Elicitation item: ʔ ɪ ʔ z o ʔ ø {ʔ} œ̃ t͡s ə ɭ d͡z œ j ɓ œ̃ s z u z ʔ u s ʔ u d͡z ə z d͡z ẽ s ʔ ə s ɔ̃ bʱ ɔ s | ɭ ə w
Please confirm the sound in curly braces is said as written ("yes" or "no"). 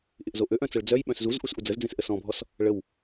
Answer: yes